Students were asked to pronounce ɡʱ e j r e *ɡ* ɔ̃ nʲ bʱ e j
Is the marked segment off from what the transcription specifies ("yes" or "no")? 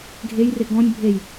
no